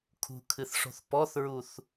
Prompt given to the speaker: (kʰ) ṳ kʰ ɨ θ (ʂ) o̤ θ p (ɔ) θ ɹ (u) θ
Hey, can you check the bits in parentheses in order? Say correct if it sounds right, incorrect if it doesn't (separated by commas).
correct, correct, correct, correct